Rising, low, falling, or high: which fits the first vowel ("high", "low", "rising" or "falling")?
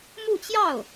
falling